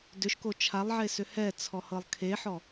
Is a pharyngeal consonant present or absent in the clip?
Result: present